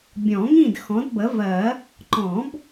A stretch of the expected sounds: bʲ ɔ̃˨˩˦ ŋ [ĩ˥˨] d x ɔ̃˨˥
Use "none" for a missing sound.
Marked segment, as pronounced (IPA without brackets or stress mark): ĩ˥˨